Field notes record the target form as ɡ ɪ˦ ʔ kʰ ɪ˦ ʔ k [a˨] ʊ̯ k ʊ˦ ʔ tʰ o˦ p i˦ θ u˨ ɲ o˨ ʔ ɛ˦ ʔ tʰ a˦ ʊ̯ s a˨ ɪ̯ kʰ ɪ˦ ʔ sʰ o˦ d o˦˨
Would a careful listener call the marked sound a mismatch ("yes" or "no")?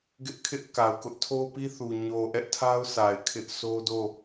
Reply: no